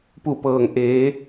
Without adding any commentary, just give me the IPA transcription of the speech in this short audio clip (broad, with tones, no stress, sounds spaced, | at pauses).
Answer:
p u˧˩ p ɤː˩ ŋ ʔ eː˩˧